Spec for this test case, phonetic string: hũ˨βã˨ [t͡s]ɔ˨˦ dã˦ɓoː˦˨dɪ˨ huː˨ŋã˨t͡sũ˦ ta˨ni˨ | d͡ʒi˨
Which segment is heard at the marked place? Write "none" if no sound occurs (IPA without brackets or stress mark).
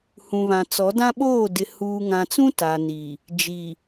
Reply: t͡s